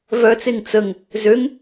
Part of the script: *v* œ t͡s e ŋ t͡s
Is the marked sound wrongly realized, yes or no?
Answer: no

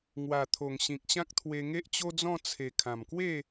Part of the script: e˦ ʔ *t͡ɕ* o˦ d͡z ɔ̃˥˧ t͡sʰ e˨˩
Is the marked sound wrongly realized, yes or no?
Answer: no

